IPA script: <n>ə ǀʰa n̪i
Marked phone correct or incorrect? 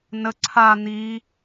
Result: correct